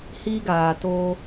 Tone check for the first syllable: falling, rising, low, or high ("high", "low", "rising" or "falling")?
high